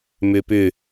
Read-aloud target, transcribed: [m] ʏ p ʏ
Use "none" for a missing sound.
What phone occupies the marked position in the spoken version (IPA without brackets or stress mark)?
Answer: m